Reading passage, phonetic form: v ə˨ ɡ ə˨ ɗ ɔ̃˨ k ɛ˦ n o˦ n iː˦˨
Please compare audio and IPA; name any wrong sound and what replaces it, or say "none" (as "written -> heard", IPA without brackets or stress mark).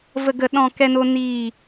none